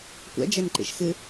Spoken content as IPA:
kʷ ɛ̰ d͡ʒ e n ǃ ḭ ʃ x ɨ

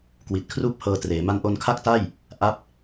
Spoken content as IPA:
k w i˨˩ t̚ kʰ r uː˥˩ p̚ h ɤː˧ t r eː˩˦ m a˧ n ʔ o˧ n kʰ a˥˩ k̚ t a˥˩ j | ʔ a˥˩ p̚

